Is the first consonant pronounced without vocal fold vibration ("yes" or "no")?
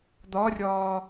no